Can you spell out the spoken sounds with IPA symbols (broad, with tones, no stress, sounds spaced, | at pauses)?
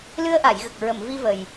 l ɨ˧ ə̯ ʔ a˨˩˨ j ɣ ə˨˩ k̚ ɹ ə˨˩˨ m v i˧ v ə˨˩ j